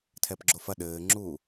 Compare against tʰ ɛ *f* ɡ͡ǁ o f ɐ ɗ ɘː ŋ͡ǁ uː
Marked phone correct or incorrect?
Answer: incorrect